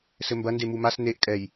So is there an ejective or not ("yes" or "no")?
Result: yes